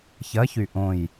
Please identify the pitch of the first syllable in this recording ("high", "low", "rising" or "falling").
rising